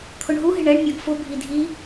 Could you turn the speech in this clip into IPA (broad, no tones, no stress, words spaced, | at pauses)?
t̪ʰʊɳɦu ɦɪɳɛɳ mʲɔɡfʊ bʱidʱi